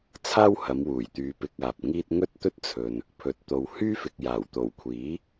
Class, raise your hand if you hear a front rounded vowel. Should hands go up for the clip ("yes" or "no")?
yes